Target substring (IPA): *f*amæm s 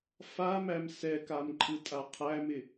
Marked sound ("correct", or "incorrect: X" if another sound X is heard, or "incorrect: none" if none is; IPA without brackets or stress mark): correct